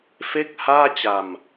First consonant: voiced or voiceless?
voiceless